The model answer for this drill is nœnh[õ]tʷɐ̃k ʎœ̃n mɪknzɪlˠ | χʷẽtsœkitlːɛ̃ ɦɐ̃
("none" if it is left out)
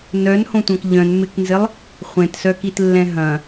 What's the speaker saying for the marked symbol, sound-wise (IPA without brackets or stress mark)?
õ